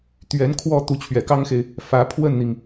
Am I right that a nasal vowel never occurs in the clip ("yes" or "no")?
yes